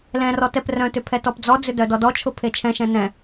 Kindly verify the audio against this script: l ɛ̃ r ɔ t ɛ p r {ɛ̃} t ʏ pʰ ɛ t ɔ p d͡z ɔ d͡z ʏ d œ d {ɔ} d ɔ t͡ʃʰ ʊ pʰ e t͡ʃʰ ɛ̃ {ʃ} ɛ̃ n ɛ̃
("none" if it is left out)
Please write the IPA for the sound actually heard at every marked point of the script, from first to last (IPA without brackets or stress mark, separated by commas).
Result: œ̃, ɔ, ʃ